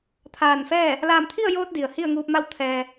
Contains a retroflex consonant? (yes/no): no